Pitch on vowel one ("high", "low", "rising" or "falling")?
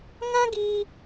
high